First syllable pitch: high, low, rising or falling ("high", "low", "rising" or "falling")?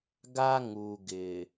high